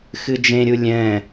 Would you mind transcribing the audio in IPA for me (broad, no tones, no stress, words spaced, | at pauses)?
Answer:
xɨd͡ʒẽɾʲu lʲɛ̃